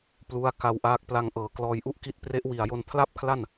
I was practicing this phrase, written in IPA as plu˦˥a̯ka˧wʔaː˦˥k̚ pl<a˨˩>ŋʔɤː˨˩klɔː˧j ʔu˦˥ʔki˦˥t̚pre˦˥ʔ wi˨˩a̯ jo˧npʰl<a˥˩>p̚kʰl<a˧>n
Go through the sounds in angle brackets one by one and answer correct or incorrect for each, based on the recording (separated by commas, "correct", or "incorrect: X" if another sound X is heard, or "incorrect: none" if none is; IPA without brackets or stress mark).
incorrect: a˧, correct, incorrect: a˥˩